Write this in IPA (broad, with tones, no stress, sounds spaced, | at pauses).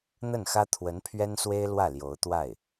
n̪ ə˥˩ n x ä˥ t̪ʰ w ə˧˥ n pʰ ɥ ɛ˥ n s w e˥ ɪ̯ l w ä˥˩ l j o˧˥ ʊ̯ t̪ w a˥˩ ɪ̯